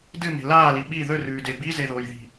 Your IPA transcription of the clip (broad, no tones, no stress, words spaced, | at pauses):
dɨme̤ laːli ɓi ðɵrʉːde bizeðoːjði̤